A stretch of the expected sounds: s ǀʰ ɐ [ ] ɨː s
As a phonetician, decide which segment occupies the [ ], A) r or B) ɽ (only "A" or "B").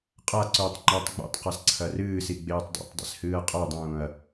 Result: A